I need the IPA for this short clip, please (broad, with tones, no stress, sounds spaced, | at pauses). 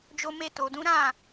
d͡ʒ o˧ m e˧ t o˨ d ũ˨˦ ɾ ã˦˨